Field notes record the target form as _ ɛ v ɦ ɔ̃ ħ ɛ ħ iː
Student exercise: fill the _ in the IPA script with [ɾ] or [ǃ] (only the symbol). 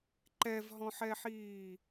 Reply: ǃ